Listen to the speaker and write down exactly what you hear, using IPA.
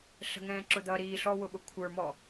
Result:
ɬ ə̤ ŋ ɛ̃ː ǁ ʊ d̪ ʌ ɾ iː ɬ ɔ w ʊ ɓ ʊ kʷʰ ə˞ m ɔ

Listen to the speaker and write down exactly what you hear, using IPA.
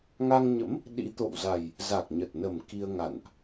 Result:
ŋ a˧ ŋ ɲ ə̰˧˥ m | ɗ ḭ˧˥ t̪ o̰˧˨ w z a˨˩ j | z a˨˩ k̚ ɲ ə˨˩ t̚ n ə˨˩ m k i˧ ə̯ ŋ a̰˧˨ n ʔ

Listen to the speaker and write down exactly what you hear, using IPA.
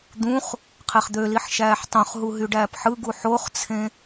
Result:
d̪ ũ χ | qʰ e χ d̪ ø l i ħ ʃ æː ħ tˤ õ χ ɦ u ɦ y ɖ æː p ħ ɯ ɡ u ħ o χ t͡sʰ ẽ

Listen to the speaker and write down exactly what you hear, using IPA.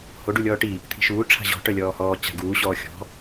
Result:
h o ɖ u lʲ ɔː ʈ i | t̪ʰ i̤ ʃ uː ʈ͡ʂʰ a̤ ʑ ɔ̤ ʈ œ lʲ ɔː h ɔː t͡ɕ a̤ ɡ uː ɕ ɔː xʲ ɔ̤

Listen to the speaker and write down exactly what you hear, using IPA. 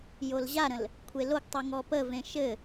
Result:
j o l ʑ a ɾ ə̃ l | kʷʰ e l o ɡ tˤ u ŋ ɔ p ə v ẽ ʃ ɘ

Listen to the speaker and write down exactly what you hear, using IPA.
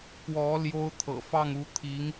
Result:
k w ɔ˧˥ l j o˥ ʊ̯ t̪ʰ ɤ̰˨˩ f ɑ˥˩ ŋ u˧˥ t̪ʰ i˧˥ ŋ

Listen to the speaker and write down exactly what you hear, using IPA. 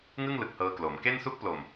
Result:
ŋ ɯ˥˩ ŋ l ɯ˨˩ k̚ h ɤː˧ k l oː˩˦ m k e˥˩ n s u˥˩ k̚ p l o˨˩ m

